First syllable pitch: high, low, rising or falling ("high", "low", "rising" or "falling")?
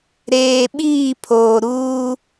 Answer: low